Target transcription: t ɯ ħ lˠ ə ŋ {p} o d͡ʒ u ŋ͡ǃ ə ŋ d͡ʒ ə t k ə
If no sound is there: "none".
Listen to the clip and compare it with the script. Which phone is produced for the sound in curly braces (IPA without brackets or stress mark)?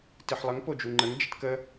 p